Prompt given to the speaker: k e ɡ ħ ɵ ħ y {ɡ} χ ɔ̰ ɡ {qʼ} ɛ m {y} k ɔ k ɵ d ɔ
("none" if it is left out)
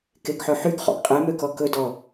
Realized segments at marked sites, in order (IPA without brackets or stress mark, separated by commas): ɡ, qʼ, ø